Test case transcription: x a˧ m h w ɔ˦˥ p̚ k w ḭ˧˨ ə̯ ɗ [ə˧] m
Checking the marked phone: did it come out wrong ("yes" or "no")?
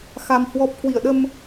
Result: no